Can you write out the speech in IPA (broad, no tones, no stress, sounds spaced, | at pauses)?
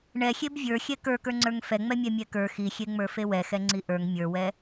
ɳ ɛ xʲ e b vʲ ə˞ xʲ ɛ k ə˞ k ə˞ ŋ͡ǀ ə˞ ŋ f ɛ ŋ͡m ɛ mʲ ɛ mʲ ɛ k ə˞ x i xʲ e ŋ͡m ə˞ f e w ɛ x ɛ ŋ͡ǀ i ʔ ə˞ ŋ mʲ ə˞ w ɛ